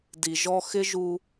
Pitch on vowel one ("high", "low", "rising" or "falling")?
low